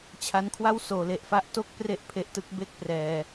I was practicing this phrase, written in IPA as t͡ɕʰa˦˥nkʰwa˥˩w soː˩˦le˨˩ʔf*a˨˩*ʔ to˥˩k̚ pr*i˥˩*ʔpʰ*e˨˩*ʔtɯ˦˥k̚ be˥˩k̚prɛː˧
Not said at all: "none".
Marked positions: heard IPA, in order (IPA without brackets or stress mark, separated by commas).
a˥˩, e˥˩, e˦˥